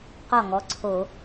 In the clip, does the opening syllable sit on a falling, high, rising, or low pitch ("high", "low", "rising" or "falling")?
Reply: falling